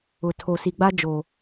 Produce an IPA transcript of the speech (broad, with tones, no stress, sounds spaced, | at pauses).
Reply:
ʊ˨ tʰ oː˨ s i˨ ɡ͡b a˦ d͡ʒ oː˨